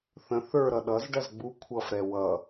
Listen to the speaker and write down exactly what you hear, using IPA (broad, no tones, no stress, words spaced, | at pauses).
θə̃ θə˞ɾʌ ɗʌzɖɐz ɡ͡bu kʷʰʌfɾɛ wʌ